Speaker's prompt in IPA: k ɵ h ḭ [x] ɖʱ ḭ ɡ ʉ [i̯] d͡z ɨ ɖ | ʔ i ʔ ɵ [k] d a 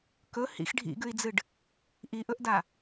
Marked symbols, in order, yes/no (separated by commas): yes, yes, no